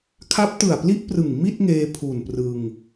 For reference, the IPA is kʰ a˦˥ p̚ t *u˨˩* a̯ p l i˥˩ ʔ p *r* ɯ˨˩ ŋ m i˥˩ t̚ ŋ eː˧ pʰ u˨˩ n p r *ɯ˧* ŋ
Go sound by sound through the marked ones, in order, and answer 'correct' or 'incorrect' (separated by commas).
incorrect, correct, correct